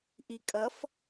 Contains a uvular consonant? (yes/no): no